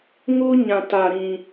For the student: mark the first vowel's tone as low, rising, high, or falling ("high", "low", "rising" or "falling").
high